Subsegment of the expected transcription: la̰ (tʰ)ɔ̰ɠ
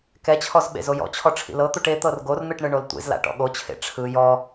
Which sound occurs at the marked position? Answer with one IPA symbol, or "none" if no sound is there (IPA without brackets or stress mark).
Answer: ʈ